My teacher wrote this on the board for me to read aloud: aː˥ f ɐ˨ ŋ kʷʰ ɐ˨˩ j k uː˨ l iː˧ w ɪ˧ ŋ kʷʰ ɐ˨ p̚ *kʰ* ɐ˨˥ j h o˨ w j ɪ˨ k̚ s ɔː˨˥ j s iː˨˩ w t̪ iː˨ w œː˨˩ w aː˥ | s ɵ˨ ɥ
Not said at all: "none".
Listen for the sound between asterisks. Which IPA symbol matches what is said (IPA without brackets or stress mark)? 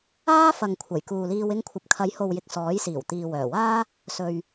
kʰ